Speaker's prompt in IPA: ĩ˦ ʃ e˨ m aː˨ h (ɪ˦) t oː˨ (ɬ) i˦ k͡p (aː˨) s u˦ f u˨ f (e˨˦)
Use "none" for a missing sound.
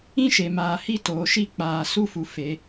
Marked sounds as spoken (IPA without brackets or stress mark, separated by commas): i˦, ʃ, aː˨, e˨˦